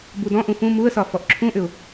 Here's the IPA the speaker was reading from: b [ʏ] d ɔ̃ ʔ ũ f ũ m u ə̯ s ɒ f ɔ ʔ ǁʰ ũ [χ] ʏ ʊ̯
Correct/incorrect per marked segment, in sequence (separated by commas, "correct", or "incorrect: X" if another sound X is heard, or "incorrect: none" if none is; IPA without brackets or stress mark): incorrect: u, incorrect: ʔ